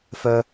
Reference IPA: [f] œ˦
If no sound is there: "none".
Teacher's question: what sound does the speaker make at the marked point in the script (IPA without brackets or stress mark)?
f